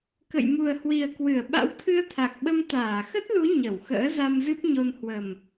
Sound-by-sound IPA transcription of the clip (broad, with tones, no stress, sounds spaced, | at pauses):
k ə̰˧˨ j m u˨˩ ə̯ h w i˨˩ ə̯ k w ɨ˧˩ ə̯ ɓ a̰˧˥ w t̪ʰ ɨ˧ ə̯ t̪ʰ a˨˩ k̚ ɓ ə˧ m t̪ aː˧˩ x ə˦˥ t̚ l u˨˦ ɲ ə˧˩ w x ə̰ː˧˥ z a˧ m z ɨ˦˥ p̚ ɲ o˧ n h w ə˨˩ m